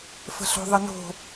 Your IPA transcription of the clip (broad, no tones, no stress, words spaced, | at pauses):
fə̤ɬo̤ðˤəno̤